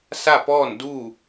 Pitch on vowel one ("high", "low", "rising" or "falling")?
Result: falling